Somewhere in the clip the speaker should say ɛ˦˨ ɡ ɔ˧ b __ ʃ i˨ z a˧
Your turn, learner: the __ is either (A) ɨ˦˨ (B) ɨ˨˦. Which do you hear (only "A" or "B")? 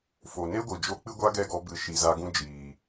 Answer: B